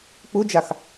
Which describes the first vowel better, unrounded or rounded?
rounded